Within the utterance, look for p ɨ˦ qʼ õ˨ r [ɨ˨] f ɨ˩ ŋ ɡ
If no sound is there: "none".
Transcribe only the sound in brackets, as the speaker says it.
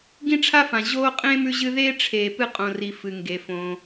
i˨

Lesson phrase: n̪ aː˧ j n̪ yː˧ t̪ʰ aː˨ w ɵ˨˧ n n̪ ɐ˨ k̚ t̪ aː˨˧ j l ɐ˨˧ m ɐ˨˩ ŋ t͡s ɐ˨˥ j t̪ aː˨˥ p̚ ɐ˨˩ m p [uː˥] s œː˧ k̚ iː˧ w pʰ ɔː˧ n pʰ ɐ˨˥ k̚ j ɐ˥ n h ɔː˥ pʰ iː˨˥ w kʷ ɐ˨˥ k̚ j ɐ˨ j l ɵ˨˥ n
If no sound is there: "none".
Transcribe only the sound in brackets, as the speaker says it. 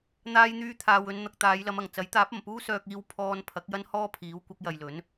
uː˥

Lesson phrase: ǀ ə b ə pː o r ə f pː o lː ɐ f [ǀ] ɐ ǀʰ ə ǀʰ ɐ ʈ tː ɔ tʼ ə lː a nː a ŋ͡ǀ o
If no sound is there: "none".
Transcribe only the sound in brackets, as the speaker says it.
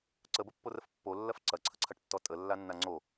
ǀ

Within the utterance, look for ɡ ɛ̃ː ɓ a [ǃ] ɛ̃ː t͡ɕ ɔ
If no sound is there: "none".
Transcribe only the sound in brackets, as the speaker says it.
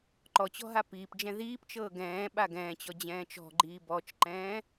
ɡ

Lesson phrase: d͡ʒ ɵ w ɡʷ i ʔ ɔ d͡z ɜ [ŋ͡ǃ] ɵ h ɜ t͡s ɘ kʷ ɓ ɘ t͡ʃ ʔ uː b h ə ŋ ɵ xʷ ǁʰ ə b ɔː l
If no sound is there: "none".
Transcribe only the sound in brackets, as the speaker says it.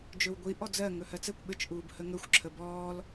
ŋ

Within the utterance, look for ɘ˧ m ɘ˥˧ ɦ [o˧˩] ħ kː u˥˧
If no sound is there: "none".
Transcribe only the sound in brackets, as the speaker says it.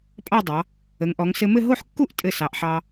o˥˧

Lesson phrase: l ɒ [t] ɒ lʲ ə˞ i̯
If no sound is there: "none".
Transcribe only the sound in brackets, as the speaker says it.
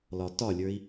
t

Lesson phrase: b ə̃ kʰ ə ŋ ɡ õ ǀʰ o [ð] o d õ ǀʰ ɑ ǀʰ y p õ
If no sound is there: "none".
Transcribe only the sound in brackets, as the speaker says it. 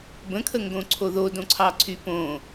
ð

